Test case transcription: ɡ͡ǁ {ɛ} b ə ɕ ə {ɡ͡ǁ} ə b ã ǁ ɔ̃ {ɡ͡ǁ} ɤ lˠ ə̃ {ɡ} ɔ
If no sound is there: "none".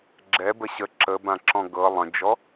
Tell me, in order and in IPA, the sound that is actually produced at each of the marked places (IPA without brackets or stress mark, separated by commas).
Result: ɛ, ǁ, ɡ, d͡ʒ